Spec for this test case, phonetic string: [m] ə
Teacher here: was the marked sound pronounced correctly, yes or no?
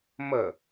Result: yes